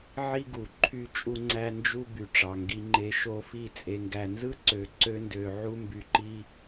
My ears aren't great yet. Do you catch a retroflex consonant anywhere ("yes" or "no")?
yes